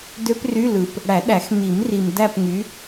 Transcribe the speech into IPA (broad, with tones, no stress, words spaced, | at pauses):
dø˦˥pry˧˥˧ lɯ˨p | ɽæ˨˩˦ɗæ˨˩˦x mi˨˩˦mri˨m dæ˥˧pŋy˨˥